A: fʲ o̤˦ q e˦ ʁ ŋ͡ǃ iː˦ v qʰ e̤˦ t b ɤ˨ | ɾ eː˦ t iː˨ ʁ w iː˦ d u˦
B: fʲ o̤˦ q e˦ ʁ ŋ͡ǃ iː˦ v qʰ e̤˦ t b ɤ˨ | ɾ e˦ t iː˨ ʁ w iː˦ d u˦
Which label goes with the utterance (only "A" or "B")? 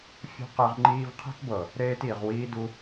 A